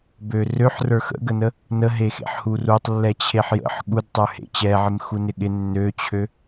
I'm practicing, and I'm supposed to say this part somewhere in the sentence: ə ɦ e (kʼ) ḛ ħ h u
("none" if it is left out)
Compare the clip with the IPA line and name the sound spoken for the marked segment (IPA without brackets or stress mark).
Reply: x